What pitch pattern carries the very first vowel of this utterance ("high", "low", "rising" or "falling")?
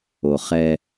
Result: low